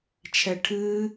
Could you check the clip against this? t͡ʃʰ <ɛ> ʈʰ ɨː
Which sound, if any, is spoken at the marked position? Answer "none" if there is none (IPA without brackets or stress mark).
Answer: ɛ